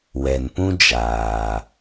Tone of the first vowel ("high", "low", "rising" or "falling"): low